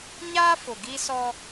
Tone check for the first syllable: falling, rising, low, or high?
high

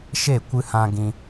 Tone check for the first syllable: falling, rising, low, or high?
falling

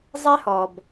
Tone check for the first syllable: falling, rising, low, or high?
high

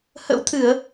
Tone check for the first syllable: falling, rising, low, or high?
rising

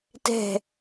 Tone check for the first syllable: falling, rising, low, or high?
falling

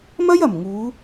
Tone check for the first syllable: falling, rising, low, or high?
high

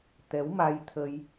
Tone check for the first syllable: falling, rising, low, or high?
rising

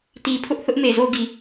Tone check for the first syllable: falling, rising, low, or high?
low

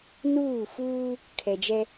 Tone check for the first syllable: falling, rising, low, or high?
falling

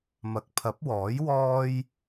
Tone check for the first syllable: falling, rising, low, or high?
low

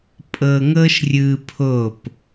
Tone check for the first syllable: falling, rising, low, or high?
low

